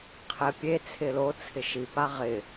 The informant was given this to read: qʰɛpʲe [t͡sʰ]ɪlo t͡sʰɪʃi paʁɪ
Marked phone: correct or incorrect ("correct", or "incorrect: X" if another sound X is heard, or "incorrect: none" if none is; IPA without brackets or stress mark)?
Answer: correct